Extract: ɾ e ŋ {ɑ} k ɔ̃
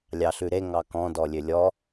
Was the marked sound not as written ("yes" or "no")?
no